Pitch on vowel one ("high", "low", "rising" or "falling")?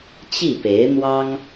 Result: falling